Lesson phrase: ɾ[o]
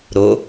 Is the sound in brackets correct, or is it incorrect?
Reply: correct